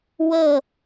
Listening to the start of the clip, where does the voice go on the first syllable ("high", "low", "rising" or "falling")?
falling